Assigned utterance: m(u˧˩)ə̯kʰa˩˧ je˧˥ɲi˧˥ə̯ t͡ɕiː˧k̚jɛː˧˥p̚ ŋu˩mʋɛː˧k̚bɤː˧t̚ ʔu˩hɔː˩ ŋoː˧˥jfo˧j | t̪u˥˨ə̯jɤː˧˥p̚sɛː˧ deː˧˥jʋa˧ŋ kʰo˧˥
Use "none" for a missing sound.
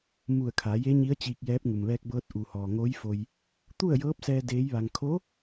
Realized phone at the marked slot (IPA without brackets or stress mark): u˧˩